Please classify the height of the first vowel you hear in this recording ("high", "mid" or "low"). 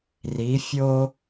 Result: high